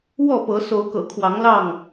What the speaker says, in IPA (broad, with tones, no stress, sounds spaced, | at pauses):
w ɔ˥˨ p ɤ˨˦ s o˨˦ ʊ̯ k ɤ̰˨˩ kʰ w ɑ˨˦ ŋ l ɑ˥˨ ŋ